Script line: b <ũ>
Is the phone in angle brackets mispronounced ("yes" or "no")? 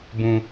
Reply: no